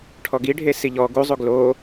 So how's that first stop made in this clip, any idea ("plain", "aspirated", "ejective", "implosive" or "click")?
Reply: aspirated